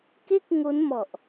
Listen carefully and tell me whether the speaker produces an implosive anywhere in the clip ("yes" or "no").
no